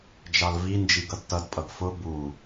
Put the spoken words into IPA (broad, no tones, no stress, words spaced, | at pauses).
d͡ʒɑlvind͡ʒiɡʌd tʌdpʼʌɡ fʊ bu